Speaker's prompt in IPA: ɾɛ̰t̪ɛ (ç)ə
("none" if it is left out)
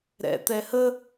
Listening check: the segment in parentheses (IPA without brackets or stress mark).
h